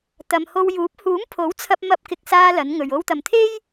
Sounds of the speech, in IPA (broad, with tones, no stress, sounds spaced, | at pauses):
t̪ ɐ˨ m h o˧ w j uː˨˥ p̚ h uː˨˥ m pʰ o˨˥ w t͡sʰ ɐ˧ p̚ m ɐ˧ p̚ k ɪ˨ k̚ s aː˧ l ɐ˨˧ n ŋ ɵ˨ ɥ o˧ w t̪ ɐ˨ m t̪ʰ e˥ j